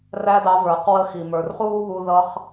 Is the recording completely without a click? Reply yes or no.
yes